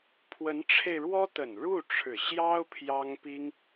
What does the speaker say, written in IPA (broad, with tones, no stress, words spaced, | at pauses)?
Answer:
pʰwə˧˥nʈ͡ʂʰe˧ɪ̯ɻwɔ˥ t̪ə˨˩nɻu˥˩ ʈ͡ʂʰɻ̩˨˩ɕjɑ˥ʊ̯ pʰjɑ˥ŋpi˥ŋ